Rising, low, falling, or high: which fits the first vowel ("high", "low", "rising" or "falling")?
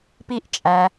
high